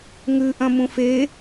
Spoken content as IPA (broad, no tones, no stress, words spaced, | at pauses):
ŋʉʔɐ̃mũf e